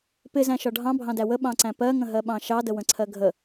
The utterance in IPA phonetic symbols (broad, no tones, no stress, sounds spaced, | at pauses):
p ɪ z æ̃ ʃ ɒ ɖʱ ɑ̃ bʱ ɑ̃ d æ w ə ɓ ɑ̃ ǀ æ̃ p ɜ ŋ ə̃ ɦ ɜ ɓ ɑ̃ ʃ ɑ d ə w ə̃ ǀʰ ɜ ɡʱ ə